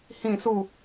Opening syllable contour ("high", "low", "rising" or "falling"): falling